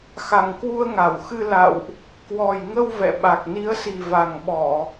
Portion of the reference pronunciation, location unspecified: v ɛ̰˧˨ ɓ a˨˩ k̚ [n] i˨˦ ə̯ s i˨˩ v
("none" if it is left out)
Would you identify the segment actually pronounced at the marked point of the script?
n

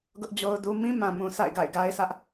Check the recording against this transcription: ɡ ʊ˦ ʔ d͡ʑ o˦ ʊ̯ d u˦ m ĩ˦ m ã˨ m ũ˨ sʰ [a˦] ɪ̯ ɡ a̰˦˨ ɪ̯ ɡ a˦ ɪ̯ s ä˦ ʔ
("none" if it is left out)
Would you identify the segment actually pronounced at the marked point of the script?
a̰˦˨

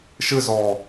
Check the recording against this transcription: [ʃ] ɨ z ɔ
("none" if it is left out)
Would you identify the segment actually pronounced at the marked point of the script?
ʃ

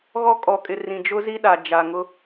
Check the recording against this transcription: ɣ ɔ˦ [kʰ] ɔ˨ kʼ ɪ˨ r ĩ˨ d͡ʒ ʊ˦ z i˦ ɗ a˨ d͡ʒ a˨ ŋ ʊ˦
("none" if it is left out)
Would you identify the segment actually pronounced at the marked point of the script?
kʼ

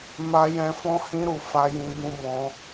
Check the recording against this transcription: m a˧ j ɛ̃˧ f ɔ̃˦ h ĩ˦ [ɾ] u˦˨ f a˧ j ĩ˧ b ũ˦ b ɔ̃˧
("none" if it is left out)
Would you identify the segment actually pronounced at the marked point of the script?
ɾ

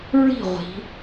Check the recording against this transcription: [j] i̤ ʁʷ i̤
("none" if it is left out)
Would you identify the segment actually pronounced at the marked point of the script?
ɹ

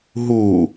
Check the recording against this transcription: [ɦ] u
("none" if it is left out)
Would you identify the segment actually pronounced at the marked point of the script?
ɦ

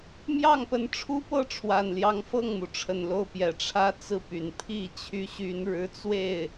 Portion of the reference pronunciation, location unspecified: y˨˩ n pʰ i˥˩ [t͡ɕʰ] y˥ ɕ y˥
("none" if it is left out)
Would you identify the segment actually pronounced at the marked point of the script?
t͡ɕʰ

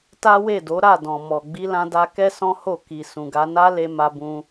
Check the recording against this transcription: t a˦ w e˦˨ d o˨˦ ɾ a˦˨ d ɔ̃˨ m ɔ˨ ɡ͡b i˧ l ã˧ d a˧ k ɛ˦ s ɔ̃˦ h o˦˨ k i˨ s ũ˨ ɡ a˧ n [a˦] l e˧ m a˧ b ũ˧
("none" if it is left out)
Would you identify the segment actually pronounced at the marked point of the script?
a˦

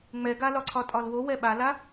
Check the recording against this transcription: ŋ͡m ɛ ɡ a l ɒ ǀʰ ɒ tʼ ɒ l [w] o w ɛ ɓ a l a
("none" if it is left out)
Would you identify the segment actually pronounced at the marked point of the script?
w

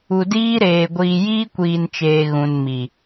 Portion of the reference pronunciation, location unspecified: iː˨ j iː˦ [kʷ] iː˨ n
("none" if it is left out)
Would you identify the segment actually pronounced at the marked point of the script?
kʷ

